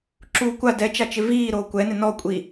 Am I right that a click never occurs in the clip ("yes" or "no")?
no